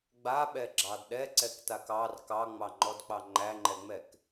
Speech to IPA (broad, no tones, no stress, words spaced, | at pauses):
ɡ͡baɓɛɡ͡ǁɑd ɗɛǀɛktak ɑr kɑŋ͡mɑŋ͡ǃɔdk͡pɑ ŋ͡ǃæŋ͡ǃɛŋ͡mɛk